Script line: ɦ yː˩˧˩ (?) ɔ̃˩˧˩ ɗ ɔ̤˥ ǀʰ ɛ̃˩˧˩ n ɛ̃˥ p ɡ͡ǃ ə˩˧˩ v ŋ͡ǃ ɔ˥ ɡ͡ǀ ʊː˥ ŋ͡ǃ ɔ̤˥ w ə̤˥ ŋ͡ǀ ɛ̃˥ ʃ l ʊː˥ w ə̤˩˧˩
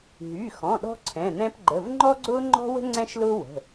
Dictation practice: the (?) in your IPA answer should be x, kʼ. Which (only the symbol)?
x